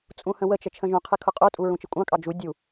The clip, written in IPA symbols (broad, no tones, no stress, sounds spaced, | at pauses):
t͡sʼ ũ h ə̃ w ə t͡ʃ ə t͡ʃʰ ə̃ ʒ ũ qʰ ɪ kʰ ʊ qʼ u tʼ u ɹ ũ t͡ʃ ɪ kʷʼ ɑ̃ kʼ ɑ d͡ʒ u dʲ u